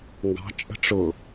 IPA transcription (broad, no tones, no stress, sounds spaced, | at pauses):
ŋ ɡ ɑ̤ t͡ʃʼ ə̤ ʈ͡ʂ ʊ